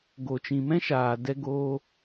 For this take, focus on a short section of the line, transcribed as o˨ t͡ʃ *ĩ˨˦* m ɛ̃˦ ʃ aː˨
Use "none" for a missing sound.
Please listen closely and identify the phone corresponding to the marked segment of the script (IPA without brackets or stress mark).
ĩ˨